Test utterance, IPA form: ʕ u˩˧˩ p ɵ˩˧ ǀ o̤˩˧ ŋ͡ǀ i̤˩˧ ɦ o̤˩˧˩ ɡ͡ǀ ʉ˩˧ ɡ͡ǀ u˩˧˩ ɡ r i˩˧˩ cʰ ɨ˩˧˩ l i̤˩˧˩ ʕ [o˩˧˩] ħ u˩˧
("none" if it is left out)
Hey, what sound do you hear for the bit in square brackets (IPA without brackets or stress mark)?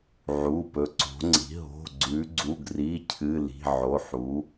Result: o˩˧˩